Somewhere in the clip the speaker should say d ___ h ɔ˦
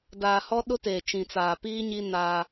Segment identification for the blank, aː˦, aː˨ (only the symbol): aː˨